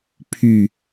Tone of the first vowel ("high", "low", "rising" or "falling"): low